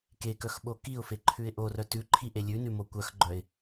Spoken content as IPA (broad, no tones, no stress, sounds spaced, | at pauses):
k e k œ x ɓ o k i ʊ̯ f e ǃʰ ʉ ɪ̯ ʔ o r œ t ʉ ǃʰ i ʔ e lʲ ʉ n ʉ m o kʷ œ x ɡ͡ǃ œ ɪ̯